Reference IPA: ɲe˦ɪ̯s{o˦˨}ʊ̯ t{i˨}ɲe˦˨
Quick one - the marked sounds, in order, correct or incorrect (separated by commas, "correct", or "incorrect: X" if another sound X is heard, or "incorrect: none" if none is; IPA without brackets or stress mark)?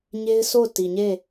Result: correct, correct